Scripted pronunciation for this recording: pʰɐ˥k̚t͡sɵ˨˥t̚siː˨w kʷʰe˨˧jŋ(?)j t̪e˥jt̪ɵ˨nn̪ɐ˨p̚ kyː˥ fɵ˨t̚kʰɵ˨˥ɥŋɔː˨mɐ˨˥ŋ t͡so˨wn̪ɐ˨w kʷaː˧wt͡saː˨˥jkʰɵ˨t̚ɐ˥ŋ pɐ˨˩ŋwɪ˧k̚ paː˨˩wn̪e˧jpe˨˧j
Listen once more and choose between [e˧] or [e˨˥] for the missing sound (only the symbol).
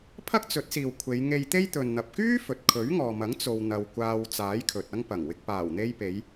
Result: e˧